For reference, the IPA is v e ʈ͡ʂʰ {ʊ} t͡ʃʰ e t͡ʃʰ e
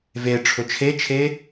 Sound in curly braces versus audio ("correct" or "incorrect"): correct